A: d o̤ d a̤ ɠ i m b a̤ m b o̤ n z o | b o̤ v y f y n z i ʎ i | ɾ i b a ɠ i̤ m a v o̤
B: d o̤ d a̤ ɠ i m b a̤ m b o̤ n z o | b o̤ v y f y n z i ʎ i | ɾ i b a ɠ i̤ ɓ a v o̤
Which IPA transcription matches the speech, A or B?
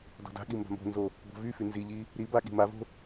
A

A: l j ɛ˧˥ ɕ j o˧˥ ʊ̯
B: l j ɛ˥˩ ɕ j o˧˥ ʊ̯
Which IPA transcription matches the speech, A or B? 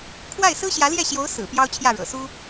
B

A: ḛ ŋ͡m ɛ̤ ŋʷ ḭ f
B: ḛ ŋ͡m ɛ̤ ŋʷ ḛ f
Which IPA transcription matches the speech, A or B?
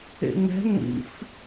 A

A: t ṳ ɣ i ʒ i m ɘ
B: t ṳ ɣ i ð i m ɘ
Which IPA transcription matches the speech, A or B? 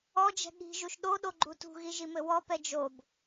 A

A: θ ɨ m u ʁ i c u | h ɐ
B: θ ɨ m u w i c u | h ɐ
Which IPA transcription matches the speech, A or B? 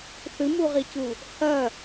A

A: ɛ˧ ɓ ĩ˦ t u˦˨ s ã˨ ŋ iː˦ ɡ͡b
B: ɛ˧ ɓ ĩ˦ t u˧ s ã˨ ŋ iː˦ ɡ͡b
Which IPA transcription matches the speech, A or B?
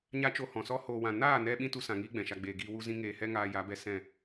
B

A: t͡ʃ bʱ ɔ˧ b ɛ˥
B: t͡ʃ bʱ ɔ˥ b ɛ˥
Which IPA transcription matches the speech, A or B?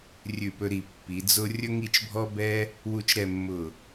B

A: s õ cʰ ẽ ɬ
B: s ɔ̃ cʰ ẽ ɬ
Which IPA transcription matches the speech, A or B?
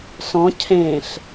B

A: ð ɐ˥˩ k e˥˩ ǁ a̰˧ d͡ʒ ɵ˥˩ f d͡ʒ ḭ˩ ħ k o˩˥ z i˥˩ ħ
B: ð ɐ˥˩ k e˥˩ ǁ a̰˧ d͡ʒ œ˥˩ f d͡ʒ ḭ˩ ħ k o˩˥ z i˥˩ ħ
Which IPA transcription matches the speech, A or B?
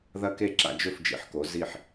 A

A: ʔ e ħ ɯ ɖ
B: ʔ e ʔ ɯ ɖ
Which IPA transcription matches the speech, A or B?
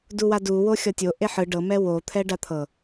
A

